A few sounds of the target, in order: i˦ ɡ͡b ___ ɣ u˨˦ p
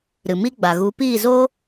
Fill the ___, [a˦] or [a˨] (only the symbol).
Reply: a˨